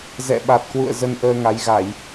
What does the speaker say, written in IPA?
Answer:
zɛ̰˧˨ɓa˨˩t̚kwṵ˧˨ə̯ zə˧nʔəː˧ŋa˨˦j ɣa˧˩˨j

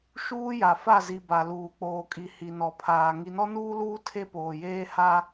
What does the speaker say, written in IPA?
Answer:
ʃuː˦ja˨ fa˦˨zi˨ ba˨luː˨k͡poː˨kʼi˨ hi˨nɔ˨pʰaː˨ ŋi˨nɔ˦nuː˦luː˦ tʰe˦poː˨jeː˦ha˦

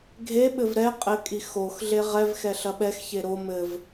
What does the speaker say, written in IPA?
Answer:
ɡʱeɓɘv ɾɛ qʼɘkʼi xox ɮeʁɛvxɛ ɬɐɓɛxçe ɾo mɘv

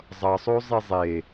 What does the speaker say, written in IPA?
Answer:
zˤʌsˤozˤe zˤe

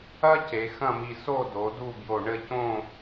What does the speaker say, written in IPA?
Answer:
ɐ˥ ce˩˧xɐ̃˥˧mi˧ so˥˧do˩˧ du˥˧bjo˧˩ ɳɘ˥˧cõ˥˧

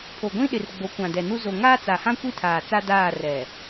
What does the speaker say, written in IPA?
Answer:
pʰo˨ɡʷĩ˦ɗɪ˨r ɡ͡bo˨˦kʷã˨dɛ˨nu˦ zo˨ ŋaː˦t͡sa˨hã˦ kʷi˦˨tʰaː˨ t͡sa˦daː˦˨ rɛ˨

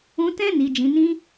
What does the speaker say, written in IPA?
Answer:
ũ˧tɛ̃˦ ni˧d͡ʒĩ˧nĩ˦

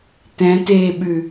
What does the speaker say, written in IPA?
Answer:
tɛ̃teːɓʉ

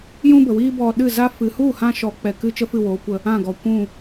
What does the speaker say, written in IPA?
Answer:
jũ˦bə˨wiː˦ bɔ˧ ɗɨ˦˨za˦ fɨ˨hu˦˨hã˧ ʃɔ˨˦ k͡pɛ˨kɨ˦ t͡ʃə˦fɨ˦˨woː˨˦kʷə˧ | ã˦˨ɡɔ˨kʷũ˦˨

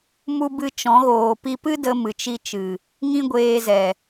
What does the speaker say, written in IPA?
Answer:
mu˧ bɨ˧t͡ʃɔ̃˨˦ɣoː˨ pi˧pɨ˦ də˧mɨ˨t͡ʃi˧t͡ʃɨ˨ | ŋĩ˦ɡʷeː˧zɛ˨

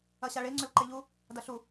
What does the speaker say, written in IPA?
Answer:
ɐɕaɭe ŋ͡ǀɵlǃeʎu | dɐɬu

